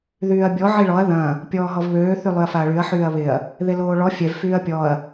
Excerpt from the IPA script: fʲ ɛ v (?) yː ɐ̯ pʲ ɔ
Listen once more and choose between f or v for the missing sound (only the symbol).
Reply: f